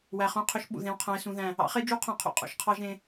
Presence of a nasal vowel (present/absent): present